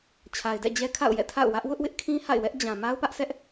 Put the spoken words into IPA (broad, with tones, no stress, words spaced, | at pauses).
t͡ɕʰa˨ɪ̯dɛ̰˦˨d͡ʑɛ˦ kʰa̰˦˨ʊ̯jɛ̰˦˨ tʰa̰˦˨ʊ̯wä˦ʔ wʊ˦ʔwɪ˦ʔkʰĩ˦ ha̰˦˨ɪ̯wɛ˦ʔ d͡ʑã˨ ma˦ʊ̯pä˦ʔsɛ˦ʔ